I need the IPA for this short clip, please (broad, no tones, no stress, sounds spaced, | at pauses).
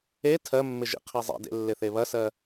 e tʰ ɜ mː ɪ ʒ ḭ qʰ e zˤ ḛ d ḛ lː ɪ θ e β ɐ s ɜ